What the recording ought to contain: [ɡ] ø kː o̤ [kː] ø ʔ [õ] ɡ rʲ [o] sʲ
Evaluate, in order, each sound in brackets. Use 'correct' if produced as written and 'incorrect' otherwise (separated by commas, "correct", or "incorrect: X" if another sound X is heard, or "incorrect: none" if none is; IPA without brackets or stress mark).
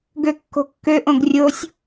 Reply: correct, correct, correct, correct